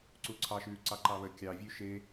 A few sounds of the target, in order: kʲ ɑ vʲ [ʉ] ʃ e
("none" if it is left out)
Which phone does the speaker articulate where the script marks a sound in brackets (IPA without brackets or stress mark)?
ʉ